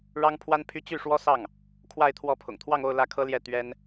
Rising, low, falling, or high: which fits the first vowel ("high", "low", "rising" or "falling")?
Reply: high